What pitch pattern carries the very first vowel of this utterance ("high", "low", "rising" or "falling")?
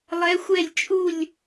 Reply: rising